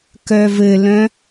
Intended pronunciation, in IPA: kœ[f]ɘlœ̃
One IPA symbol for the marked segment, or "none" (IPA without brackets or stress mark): v